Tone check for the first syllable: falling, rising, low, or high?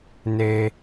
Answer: high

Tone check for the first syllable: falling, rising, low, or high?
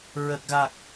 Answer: low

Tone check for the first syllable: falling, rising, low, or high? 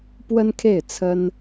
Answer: high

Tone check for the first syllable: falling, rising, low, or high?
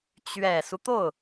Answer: low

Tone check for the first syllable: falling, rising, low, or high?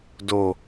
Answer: low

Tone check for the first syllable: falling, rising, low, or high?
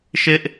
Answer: high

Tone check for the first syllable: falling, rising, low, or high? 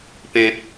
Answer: high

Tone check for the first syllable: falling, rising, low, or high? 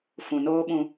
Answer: low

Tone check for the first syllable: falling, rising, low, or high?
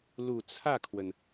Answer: low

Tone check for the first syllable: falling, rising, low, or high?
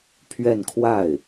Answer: falling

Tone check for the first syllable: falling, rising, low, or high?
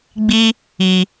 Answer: high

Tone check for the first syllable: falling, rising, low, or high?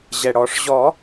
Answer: low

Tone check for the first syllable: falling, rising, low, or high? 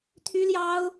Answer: high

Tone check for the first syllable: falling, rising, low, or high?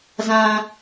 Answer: high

